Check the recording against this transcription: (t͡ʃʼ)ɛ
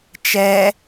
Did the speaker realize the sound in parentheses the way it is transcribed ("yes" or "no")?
no